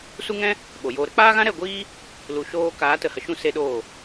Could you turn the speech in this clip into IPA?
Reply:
s u˦ ŋ ɛ̃˦ | ɓ o˨ j oː˧ ɾ ə˦ k͡p aː˦ ɣ ã˦ ɾ ɛ˦˨ ɡʷ iː˦ | l u˨ ʃ oː˧ k aː˨˦ t ə˨ h ə˨ ʃ ũ˦˨ s e˦ ɗ oː˦˨

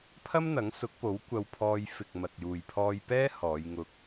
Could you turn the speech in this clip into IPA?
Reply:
pʰ ɐ˥ m n̪ ɐ˨˥ ŋ s ʊ˨˥ k̚ p o˨˥ w kʷ ɐ˧ w pʰ ɔː˧ j f ɪ˨ k̚ m ɐ˨ t̚ j uː˨ j pʰ ɔː˧ j p ɛː˥ h ɔː˨˧ j ŋ ʊ˧ k̚

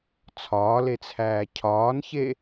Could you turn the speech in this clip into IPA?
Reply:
t͡sʰ ɒː l e t͡sʰ æː cʰ ɒː n ç e

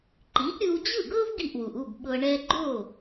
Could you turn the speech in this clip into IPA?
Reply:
ǃ i˩˥ ʔ ɾʲ ɯ˧ w d͡ʑ ɯ˥˩ ɡ ɤ˥ v ɡ i˥˩ ʔ w u˩ ʔ u˥˩ b ɓ ɤ˧ ɳ ɛ˧ ɡ͡ǃ o˥˩

